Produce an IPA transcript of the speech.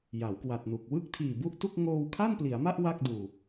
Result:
ja˩˦wkwa˨˩t̚nu˨˩k̚ wɯ˥˩k̚tʰiː˨˩bu˥˩ʔtu˥˩k̚ ŋoː˧wkʰa˥˩npli˩˦a̯ma˥˩ʔ wa˥˩k̚duː˨˩

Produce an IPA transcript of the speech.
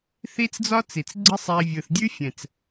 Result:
θi˦t͡sd͡zɒ˦ t͡si˨t͡sɡ͡ǀɨ˦sˤe˧ vʲɯ˨θdʲʉ˦fʲɛ̃˨t͡s

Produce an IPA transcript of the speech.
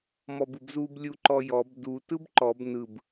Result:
mɔbɯbzub lʲuǃɔjɔb du tɯbǃɔb nɯb

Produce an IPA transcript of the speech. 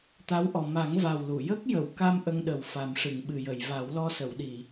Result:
t̪a˧˥wʔɔ˨˩ ma˨˩˦ŋva˨˩w lu˨˩˨ jə˦˥k̚jə˨˩˨wka˧m ʔə˧ŋɗə˨˩wfa˨˩mʂɨ˨˩˨ŋ ɓɨ˨˩jə˨˩˨j va˨˩˦wlɔ˧sə˨˩˨wɗi˨˩˨

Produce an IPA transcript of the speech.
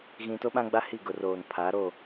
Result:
ɣĩ˨ to˦ɓã˦ɡ͡ba˦ hi˦˨ɡʊ˨roː˨n pʰa˨˦ ɾoː˦˨

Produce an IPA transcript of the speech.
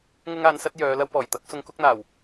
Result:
ŋʊ˥ŋaː˧nsɐ˥t̚ jœː˨˧ lɐ˧wpɔː˨˩jt̪ɐ˨˥k̚ sʊ˧ŋkʊ˥k̚n̪aː˨˩w

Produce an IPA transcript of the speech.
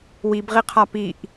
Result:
wibʁiqʰa piʔ

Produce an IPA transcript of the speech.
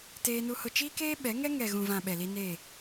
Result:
teː˦nu˦hʊ˦ t͡ʃiː˦keː˦ɓɛ˨˦ŋɛ˦ ŋɛ˨ɣũ˨vã˨ ɓɛ˨li˦ neː˦˨

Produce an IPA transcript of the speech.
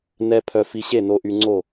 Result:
nɛ˧ pʰœ˧fi˧ɕe˥˨ no˧ʔy˧ŋ͡ǀo˥˨

